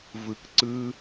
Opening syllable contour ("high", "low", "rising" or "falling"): low